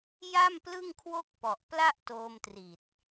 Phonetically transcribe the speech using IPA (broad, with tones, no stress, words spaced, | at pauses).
ja˥˩mplɯ˥˩ŋ kʰwo˥˩k̚pɔ˨˩ʔpla˥˩ʔ toː˧mtri˨˩t̚